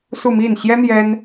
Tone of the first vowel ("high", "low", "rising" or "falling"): falling